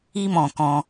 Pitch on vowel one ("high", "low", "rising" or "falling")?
high